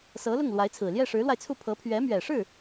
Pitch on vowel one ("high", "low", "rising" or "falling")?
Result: rising